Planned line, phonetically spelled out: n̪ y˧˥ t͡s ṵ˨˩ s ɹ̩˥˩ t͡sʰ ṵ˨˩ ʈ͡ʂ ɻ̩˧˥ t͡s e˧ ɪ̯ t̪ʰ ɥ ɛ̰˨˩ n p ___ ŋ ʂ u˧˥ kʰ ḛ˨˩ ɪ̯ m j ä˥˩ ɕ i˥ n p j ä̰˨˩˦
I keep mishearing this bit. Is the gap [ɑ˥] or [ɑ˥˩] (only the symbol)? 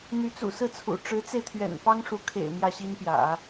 ɑ˥